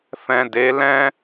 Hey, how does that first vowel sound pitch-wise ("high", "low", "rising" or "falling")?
low